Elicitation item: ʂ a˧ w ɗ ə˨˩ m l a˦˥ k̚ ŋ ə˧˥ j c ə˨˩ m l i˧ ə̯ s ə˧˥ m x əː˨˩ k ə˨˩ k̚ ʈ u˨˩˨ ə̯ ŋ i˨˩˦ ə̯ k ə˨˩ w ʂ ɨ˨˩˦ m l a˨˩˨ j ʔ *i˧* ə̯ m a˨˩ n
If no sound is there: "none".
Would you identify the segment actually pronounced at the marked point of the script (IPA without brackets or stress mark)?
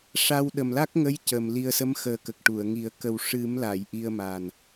i˧